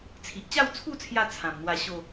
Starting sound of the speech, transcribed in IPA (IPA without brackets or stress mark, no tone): t͡sʰ